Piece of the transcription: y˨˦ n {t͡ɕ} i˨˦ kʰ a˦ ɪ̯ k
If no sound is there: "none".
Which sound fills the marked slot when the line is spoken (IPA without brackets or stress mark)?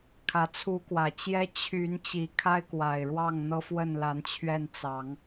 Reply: t͡ɕ